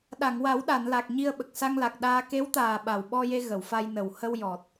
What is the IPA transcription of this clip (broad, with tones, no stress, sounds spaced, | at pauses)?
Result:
ɗ a˨˩˨ ŋ w a˨˩˦ w ɗ a˨˩˨ n l a˨˩ k̚ ɲ i˧ ə̯ ɓ ə˨˩ k̚ s a˧ ŋ l a˨˩ k̚ ɗ aː˧ k e˧˥ w t̪ aː˨˩ ɓ a˨˩ w ɓ ɔ˧ j e˧ ɣ ə˨˩˨ w f a˧ j n ə˨˩ w h ə˧ w j ɔ˨˩ t̚